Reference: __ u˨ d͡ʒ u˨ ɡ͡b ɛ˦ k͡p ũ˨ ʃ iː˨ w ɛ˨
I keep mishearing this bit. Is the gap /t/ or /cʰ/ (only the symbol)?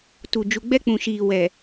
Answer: t